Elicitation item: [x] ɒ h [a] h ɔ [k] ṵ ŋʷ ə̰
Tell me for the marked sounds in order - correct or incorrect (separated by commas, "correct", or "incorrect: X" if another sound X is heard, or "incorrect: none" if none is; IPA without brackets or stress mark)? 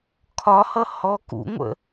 incorrect: kʰ, incorrect: ʌ, correct